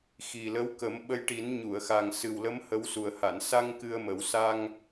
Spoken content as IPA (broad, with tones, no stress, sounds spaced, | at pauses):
x i˨˩ l ə˧˥ w k ə˨˩˦ m ɓ ə˧ j ʈ i˨˩˦ n ɲ u˨˩˨ ə̯ x a˨˩ ŋ s ɨ˨˩ w l ə˧˥ m h ə˧˥ w s u˨˩ ə̯ h a˨˩˨ n s a˧ ŋ k ɨ˧ ə̯ m ə˨˩˦ w s a˧ ŋ